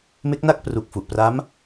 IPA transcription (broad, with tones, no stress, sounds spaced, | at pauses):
m e˦˥ k̚ n a˥˩ k̚ p r u˨˩ k̚ f u˨˩ ʔ p r a˦˥ m